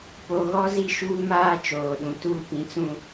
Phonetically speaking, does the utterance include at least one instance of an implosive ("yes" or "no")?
yes